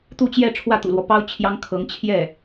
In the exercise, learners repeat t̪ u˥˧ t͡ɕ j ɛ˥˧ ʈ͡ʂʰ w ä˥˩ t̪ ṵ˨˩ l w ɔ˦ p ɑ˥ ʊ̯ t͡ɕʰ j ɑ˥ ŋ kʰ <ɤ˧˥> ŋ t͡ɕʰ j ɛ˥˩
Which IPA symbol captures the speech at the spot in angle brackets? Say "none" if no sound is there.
ɤ˧˥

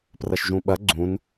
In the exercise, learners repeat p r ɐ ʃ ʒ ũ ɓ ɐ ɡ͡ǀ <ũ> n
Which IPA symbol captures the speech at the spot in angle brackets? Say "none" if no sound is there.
ũ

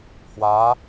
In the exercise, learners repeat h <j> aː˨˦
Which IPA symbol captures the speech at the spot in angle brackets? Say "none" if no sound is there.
w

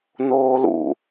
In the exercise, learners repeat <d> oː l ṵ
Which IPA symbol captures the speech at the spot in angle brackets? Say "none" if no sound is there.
n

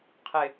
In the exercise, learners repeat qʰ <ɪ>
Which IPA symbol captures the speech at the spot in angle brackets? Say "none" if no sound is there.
ɪ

